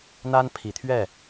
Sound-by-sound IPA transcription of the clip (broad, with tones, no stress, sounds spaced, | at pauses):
n̪ a˦ n pʰ i˨˦ t̪ʰ ɥ ɛ˥˨